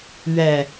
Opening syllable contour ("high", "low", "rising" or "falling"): low